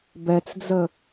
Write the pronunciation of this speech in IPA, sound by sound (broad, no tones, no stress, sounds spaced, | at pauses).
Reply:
b ɛ t͡s d͡z ə